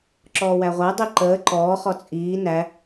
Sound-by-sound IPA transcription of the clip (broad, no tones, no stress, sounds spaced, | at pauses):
ǁ ɔː w æ ʁʷ æ dˤ i ǃ əː ǃ ɔː χ ɔ t͡sʼ iː n æ